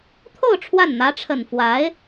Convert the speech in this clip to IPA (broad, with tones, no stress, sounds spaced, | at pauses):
t̪ʰ o˥˧ ʊ̯ ʈ͡ʂʰ w a˥˩ n n̪ ä˧˥ ʈ͡ʂʰ ə˨˩ n f w a˧˥ ɪ̯